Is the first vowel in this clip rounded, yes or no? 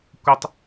no